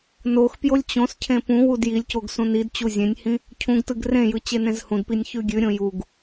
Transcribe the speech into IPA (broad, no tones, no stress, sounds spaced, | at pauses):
n o x p j o lʲ t͡ɕ õ s cʰ ẽ p ũ w u d j i lʲ c o ɡ s ũ n i d t͡ɕ u zʲ ẽ nʲ h ĩ | cʰ ũ ɡ t ɯ ɡ r ẽ j ɯ t͡ɕ e n ẽ z h ũ d p i nʲ ç ʉ ɡʲ ʉ ɾʲ õ j u ɡ